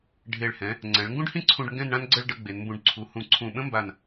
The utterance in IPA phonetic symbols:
ɖʱ e˧˩ ɭ h ɛ̃˩˧ | ŋ͡ǀ ɛ̃˩˧ ɭ ŋ ɡ ũ˥ ɖ h ĩ˥ ǀʰ ũ˧ ɖ ŋ ɡ ɛ̃˥˧ n ɳ ã˥ n ɡ͡ǀ ə˥˧ ɭ ɖ ə˧ ɡ͡b e˩˧ n m b ũ˧ ɖ ǀʰ u˩˧ h ũ˧˩ ǀʰ ũ˧˩ ɓ ə̃˥ m b a˧˩ n

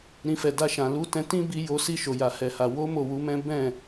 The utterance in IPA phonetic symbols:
ɾ ĩ˨ f ɛ˨ d a˧ ʃ ã˨ l u˨˦ t ɛ̃˧ t ĩ˦ b i˧ j o˧ s i˧ ʃ o˨ j a˨ h ɛ˨ h a˨ w o˨˦ m o˦˨ w u˨˦ m ɛ̃˦ b ɛ̃˦˨

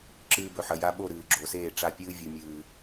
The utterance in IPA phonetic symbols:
ǁ ɨː˧ b ɵ˨ ħ ɐ˨ j a˧ ɓ o˦˨ ɾ ɨː˨ ɡ͡ǁ o˨ s eː˦˨ ʈ͡ʂ a˦˨ pʲ ɨː˦ vʲ u˨ mʲ ɨː˨

